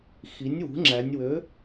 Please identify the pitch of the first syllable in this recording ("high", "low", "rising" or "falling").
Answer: rising